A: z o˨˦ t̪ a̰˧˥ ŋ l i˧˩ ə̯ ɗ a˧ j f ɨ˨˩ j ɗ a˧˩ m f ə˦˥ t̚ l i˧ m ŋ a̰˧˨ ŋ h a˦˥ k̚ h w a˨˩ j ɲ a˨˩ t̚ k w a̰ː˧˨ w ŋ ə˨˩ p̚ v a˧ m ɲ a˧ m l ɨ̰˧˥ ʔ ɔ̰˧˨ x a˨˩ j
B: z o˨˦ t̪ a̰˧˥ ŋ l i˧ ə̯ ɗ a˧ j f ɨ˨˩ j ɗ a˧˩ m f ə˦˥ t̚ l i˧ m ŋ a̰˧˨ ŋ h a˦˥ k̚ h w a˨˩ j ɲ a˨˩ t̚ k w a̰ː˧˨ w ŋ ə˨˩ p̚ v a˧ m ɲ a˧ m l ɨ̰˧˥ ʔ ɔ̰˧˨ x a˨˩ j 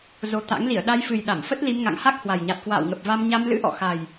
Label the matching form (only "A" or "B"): A